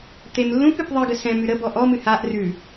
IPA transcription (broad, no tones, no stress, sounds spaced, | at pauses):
t̪ e m lː ũ p ɨ p ðˤ ɨ ɡ ə s ɛ̃ m ʉ ɾ ə b ɔ ʔ ɔ m ɨ h a ʔ r ʉ